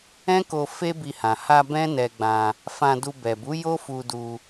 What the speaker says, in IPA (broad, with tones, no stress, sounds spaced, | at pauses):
ɛ̃˦ k o˧ f e˦ b i˧ h ã˨ h a˧ b ɛ̃˦ n ɛ˧ ɡ͡b ã˧ | f ã˧ d u˧ b ɛ˨ b u˨˦ j o˦ f u˧ d u˧